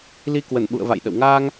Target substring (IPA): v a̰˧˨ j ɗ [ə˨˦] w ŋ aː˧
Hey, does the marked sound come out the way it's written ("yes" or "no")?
no